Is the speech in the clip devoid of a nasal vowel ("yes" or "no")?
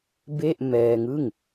yes